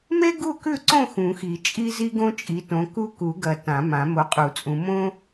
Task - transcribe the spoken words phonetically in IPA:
me˥ɡu˥˨kʉ˥˨ǀõ˥˨ xũ˨˩˦xi˨˩˦ t͡ʃʼi˥zi˥ ɡõ˥t͡ʃʼi˨˦tõ˨˦ ku˥˨ku˨˩˦ɡɐ˨˩˦ tã˨˩˦mã˨˩˦ mo˨˦qʼu˨˩˦t͡sʼũ˨˦ mõ˥

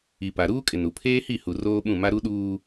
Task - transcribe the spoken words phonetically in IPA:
i˨pa˨ ɾuː˦kʼɪ˨nu˨ pʰeː˦hi˦˨hu˨ roː˦ɓũ˦˨ma˦ ɾu˦ɗuː˦

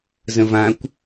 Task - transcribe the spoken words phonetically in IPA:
zə̃vãkʷ

